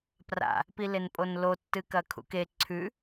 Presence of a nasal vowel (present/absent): absent